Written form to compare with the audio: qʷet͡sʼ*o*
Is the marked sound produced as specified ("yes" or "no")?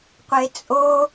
yes